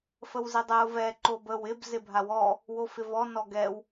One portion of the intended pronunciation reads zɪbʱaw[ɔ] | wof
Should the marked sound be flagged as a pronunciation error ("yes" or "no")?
no